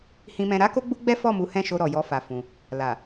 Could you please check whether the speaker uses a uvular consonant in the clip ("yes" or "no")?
no